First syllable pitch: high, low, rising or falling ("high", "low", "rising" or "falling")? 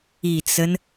low